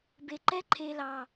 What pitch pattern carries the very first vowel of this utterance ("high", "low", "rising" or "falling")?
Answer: low